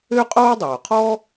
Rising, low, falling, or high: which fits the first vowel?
high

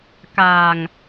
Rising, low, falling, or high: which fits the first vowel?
low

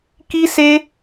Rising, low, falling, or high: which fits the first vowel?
high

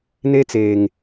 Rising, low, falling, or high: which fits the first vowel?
high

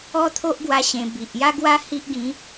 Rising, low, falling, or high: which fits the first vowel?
high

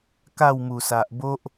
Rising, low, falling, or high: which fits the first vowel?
falling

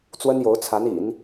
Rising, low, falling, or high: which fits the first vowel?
high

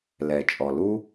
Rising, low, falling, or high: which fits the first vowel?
low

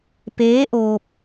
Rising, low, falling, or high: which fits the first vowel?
rising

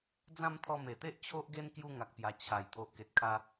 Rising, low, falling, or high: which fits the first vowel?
falling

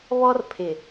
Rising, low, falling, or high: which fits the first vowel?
high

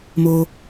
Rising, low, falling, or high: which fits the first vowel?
low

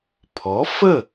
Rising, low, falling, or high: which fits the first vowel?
rising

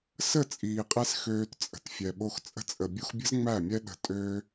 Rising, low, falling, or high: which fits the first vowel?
falling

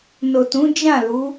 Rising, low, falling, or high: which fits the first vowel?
low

